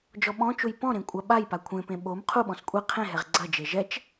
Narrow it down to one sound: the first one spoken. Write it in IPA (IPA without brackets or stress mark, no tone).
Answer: d͡ʒ